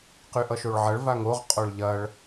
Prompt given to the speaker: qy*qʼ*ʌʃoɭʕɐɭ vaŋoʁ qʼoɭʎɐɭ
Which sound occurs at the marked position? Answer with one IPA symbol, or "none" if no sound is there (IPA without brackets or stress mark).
ʔ